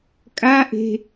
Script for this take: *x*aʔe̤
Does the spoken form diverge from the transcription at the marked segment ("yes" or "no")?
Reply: yes